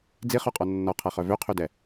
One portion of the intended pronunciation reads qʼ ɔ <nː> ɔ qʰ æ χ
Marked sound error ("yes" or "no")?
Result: no